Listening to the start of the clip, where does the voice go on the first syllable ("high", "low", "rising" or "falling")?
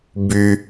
high